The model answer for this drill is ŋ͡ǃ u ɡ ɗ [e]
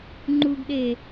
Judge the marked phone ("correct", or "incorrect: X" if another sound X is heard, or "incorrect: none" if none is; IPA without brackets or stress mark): correct